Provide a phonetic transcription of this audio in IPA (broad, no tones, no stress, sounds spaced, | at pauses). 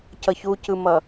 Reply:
c ʌ ç u c ɯ m ʌ